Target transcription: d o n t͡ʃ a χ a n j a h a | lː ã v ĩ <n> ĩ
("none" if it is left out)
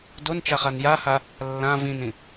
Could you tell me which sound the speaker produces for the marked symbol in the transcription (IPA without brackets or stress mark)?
n